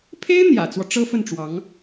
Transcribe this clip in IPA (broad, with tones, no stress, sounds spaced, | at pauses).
pʰ e˥ ɪ̯ n̪ j ä̰˨˩ t͡s w ɔ˦ ʈ͡ʂ ɤ˥ f ə˥˩ n ʈ͡ʂ w ɑ˧˥ ŋ